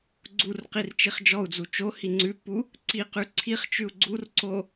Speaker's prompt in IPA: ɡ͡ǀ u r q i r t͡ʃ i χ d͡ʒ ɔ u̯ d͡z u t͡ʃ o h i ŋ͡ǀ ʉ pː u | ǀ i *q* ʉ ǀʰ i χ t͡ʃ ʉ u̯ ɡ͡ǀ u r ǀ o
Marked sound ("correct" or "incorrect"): correct